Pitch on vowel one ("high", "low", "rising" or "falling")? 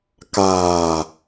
low